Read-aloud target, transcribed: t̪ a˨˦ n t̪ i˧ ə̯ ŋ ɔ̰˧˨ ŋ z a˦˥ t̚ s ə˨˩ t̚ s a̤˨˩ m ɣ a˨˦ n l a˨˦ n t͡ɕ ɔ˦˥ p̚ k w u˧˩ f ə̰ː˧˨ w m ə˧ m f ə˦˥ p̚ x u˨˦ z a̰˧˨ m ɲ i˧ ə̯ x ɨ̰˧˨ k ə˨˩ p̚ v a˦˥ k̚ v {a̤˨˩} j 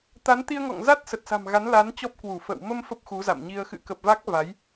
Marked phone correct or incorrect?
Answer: incorrect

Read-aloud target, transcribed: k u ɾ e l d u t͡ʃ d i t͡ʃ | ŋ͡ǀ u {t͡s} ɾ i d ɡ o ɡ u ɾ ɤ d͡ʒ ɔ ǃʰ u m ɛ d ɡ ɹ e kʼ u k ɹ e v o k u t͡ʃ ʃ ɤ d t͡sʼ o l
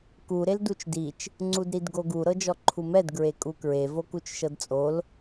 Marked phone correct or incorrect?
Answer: incorrect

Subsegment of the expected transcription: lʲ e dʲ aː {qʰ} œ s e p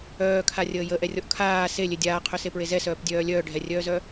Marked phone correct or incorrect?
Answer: correct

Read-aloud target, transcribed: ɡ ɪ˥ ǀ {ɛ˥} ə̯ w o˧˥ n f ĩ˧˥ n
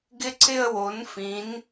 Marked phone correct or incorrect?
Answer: incorrect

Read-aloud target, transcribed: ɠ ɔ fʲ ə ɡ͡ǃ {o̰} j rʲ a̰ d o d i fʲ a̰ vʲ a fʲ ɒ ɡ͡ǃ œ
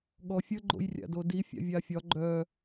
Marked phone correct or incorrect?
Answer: correct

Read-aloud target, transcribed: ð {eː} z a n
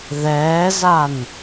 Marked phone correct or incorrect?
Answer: incorrect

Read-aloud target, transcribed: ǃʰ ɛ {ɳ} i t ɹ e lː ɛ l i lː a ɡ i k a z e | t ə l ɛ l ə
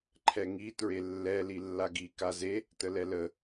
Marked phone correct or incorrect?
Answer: incorrect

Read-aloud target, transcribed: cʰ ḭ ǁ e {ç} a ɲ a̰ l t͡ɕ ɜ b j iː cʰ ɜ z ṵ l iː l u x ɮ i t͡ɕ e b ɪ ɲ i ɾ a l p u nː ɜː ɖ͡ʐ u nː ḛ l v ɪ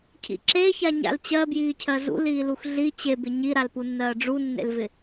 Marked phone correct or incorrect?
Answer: correct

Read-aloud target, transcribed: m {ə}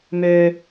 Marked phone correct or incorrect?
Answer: incorrect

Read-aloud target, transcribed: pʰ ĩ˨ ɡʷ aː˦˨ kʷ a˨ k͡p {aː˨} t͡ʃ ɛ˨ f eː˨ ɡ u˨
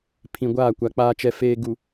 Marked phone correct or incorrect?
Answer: correct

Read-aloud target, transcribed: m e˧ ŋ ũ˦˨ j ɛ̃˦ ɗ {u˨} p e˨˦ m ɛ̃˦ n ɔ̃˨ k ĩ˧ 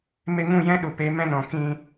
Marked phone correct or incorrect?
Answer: correct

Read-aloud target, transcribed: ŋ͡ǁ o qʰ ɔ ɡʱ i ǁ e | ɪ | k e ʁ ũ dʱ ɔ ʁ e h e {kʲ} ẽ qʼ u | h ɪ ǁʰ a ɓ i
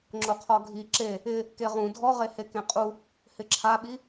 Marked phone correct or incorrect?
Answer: incorrect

